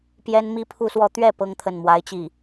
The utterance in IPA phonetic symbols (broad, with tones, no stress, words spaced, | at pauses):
pjɛ˥nmi˥ pʰu˥˧swɔ˥˧ t̪ɥɛ˥˩ pɤ˥ŋt̪ʰə˥˩nmwa˧˥ɪ̯t͡ɕi˥˩